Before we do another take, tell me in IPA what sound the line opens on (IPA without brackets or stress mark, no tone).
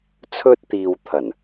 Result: t͡sʰ